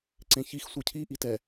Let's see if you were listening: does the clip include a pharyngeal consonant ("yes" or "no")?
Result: no